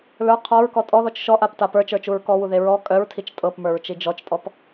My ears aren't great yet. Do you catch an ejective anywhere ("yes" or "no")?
yes